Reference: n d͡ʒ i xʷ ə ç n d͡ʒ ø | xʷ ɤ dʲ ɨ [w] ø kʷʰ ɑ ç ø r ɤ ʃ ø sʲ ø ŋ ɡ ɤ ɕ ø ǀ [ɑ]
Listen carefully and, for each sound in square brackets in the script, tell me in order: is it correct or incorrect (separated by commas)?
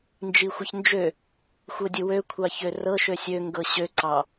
correct, correct